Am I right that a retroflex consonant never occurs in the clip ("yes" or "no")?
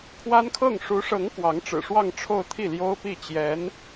no